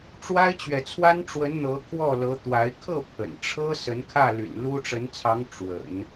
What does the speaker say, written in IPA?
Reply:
ʈ͡ʂ w a˥ ɪ̯ t͡ɕ ɥ ɛ˨ t͡sʰ w a˥ n ʈ͡ʂ w ə˧˥ n n̪ ɤ˧˥ kʰ w ɔ˥˩ l ɤ˧˥ t̪ w a˧˥ ɪ̯ kʰ ɤ˥˩ pʰ ə̰˨˩ n ʈ͡ʂʰ ɤ˥ s ə˧˥ n kʰ ä˥˩ l y̰˨˩ n l u˥ ʈ͡ʂ ə˧˥ n t͡sʰ ɑ˧˥ ŋ ʈ͡ʂ w ə̰˨˩˦ n

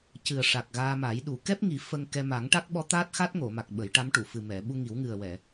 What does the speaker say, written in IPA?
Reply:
c ɨ˨˩ ə̯ ʂ a˨˩ k̚ ɣ aː˧ m a˨˩˦ j ɗ u˨˩˦ k ɛ˦˥ p̚ ŋ i˨˩˦ f ə˧ ŋ k ɛ˧ m a˨˩˦ ŋ ʈ a˦˥ k̚ ɓ ɔ˧˥ t̪ aː˦˥ t̚ x a˦˥ t̚ ŋ o˨˩˨ m a˨˩ k̚ ɓ ə˨˩˦ j ʈ a˧˥ m ʈ u˨˩˨ f ɨ˨˩ m ɛ˨˩˨ ɓ u˧ ŋ i˨˩˦ w ŋ ɨ˨˩ ə̯ w ɛ˨˩˨

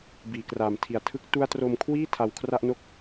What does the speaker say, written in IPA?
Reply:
b iː˨˩ k r aː˨˩ m tʰ i˨˩ a̯ tʰ ɯ˥˩ k̚ t u˦˥ a̯ t r o˧ m kʰ w iː˥˩ tʰ a˧ w kʰ r a˥˩ ʔ n o˥˩ k̚

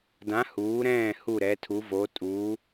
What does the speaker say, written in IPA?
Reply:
d ã˨˥ h uː˨˥ ɾ ɛ̃ː˥˨ h u˥˨ ɾ ɛ˨˥ tʰ u˨˥ v o˨˥ tʼ uː˨˥

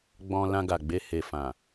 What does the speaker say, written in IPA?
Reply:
ɡ͡b ɔ̃˧ l ã˧ ɡ a˨ ɡ͡b e˧ h e˨ f ã˨

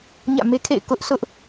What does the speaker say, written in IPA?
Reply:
ɲ ä̰˦˨ m e˦ kʰ ḛ˦˨ ɪ̯ k ʊ˦ ʔ sʰ ʊ˦ ʔ

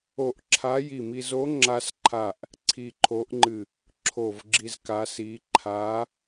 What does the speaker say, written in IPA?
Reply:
o˧˩ ʔ ǁʰ a˧˥ j i˧˩ m i˧ z o˧˥ ŋ͡ǁ a˧ s ǃʰ a˧˩ ʔ | ǀʰ i˧˩ ǃʰ o˧˥ ʔ ŋ͡ǃ ɨ˧˩ | ǁʰ o˧˩ v ɡ͡ǁ i˧ z k a˧˥ s i˧˥ ǃʰ a˧˥

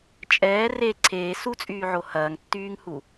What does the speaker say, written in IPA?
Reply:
t͡ʃʼ ɛː r e ǀʰ eː s u t͡sʼ yː ʕ o h ɐː ŋ tː yː ŋ h u

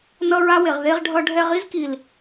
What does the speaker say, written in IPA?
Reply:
n ʌ˦ ɹ a˦ w e˨ ʁ ð e˦ ʁ ɖʱ ʌ˧ ɖʱ ɛ˧ ʁ i˦ z k i˨ l

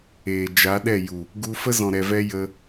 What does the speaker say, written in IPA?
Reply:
eː˨ d͡ʒ a˨˦ ɗ ɛ˦˨ j u˨ | ɡ u˧ f ə˦ z ɔ̃˨ ɾ ɛ˨ v ɛ˧ j ə˧

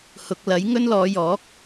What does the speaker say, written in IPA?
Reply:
h ʊ˨ k̚ l ɐ˨˥ j ŋ ɵ˥ n l ɔː˨˧ j ɔː˨˥ k̚

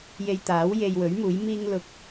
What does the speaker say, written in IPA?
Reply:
j e˧ j t̪ aː˨˥ w j e˧ j w ɵ˨˥ ɥ m uː˨˥ j m iː˥ ŋ l ʊ˨˥ k̚

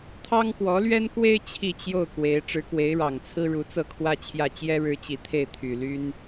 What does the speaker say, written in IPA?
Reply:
t̪ʰ ɑ˥ ŋ k w ɔ˧˥ l ɥ ɛ˥ n k w e˥ ɪ̯ t͡ɕʰ i˥˧ t͡ɕ j o˥˩ ʊ̯ k w e˧˥ ɪ̯ ʈ͡ʂ ɻ̩˧˥ k w e˧˥ ɪ̯ ɻ ɑ˨˩ ŋ t͡sʰ ɹ̩˥ ɻ u˧˥ t͡s ɤ˥˩ kʰ w ä˥ t͡ɕʰ j ä˥˩ t͡ɕ j ɛ˥ ɻ ɻ̩˧˥ t͡ɕ i˨˩ t̪ʰ e˥˩ ɪ̯ t̪ʰ y˨˩ l y˥ n

